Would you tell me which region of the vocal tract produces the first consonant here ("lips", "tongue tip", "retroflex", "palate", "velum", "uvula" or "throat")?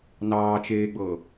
tongue tip